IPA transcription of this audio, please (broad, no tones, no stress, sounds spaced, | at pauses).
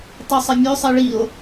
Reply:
tˤ y sˤ e mʲ ø sˤ e ɭ i o̯